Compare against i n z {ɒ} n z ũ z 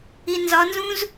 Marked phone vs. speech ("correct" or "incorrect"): correct